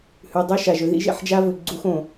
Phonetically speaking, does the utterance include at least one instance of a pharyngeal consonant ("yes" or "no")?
yes